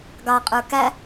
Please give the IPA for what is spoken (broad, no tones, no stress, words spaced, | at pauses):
ɡɑqʼə˞ kæ